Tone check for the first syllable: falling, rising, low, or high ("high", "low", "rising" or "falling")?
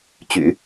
low